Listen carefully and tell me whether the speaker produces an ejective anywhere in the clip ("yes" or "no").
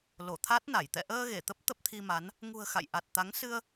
no